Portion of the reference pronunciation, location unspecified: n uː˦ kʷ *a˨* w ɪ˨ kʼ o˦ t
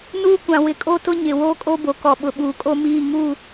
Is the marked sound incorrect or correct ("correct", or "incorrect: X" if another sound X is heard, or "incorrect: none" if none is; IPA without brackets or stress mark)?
incorrect: ã˨